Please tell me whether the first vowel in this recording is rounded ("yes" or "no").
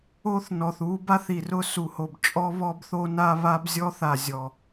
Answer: yes